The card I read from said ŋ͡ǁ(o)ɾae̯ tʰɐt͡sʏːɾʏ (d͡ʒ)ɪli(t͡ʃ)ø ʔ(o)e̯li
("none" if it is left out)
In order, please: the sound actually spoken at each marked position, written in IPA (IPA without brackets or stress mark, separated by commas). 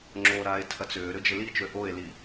o, d͡ʒ, t͡ʃ, o